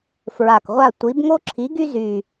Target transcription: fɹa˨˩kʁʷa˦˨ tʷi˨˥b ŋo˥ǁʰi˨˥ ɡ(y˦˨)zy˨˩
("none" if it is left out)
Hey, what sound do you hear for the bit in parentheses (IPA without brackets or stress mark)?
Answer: y˥